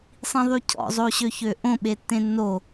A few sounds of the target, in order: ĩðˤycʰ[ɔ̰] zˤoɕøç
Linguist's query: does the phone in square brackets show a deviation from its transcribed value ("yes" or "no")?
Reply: no